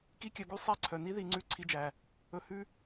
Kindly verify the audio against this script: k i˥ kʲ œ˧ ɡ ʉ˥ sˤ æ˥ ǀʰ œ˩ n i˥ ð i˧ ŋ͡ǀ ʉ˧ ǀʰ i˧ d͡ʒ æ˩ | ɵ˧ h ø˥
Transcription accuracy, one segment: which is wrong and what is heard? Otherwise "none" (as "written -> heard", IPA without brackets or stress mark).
ø˥ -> ʉ˥